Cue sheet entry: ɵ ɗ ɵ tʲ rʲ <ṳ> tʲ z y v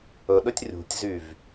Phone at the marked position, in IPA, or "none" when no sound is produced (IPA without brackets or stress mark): ṳ